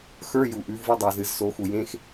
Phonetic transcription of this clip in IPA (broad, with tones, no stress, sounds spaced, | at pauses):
x ə˞˧˥˧ j u˨ ʔ ʉ˨˥ v ɨ˧˥˧ dˤ e˨ z ɨ˨˩˦ z s o˨˥ x u˨ j ẽ˧˥˧ x